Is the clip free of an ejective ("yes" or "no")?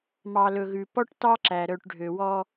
yes